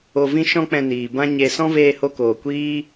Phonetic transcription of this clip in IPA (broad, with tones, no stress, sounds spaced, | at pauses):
o˧ v ĩ˦ ʃ ɔ̃˦ k͡p ɛ̃˧ n iː˨ b ã˧ ɲ e˧ s ɔ̃˦ v eː˧ h o˧ k oː˨ kʷ iː˦